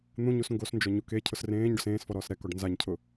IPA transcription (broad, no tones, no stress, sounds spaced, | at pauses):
n̪ ũ ɲ u s ŋ ɡ o s n d͡ʒ ɔ ɲ u k e cʰ ʊ s r ẽː ɲ ɖ ʊ s ẽː s f ɔ ɾ ɔː s ɾ ɛ k ɔ ɖ n z a ɲ cʰ ʊ